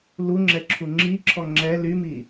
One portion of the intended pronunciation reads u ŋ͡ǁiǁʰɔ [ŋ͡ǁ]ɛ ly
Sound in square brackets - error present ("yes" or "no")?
no